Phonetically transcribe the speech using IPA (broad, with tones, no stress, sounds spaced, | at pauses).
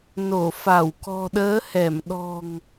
n o˧˩ f a˧˩ w k ɔ̤˨˩ ɗ əː˨˦ h ɛ˧˩ m ɗ ɔ̤˨˩ ŋ